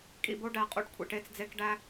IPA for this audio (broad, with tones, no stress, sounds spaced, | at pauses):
kʼ ḭ˨ b o˦ ɖ æ˨ qʼ ṵ˨ ɖ kʷʰ ḭ˨ ʈ e˦ t͡s d͡z e˦ k ɖ æ˦